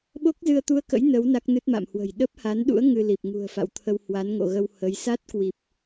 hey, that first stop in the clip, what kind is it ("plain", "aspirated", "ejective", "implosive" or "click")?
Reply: implosive